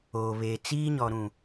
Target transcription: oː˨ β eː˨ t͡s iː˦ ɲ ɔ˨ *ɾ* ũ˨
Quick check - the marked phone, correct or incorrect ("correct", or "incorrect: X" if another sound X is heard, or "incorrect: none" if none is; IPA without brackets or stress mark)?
correct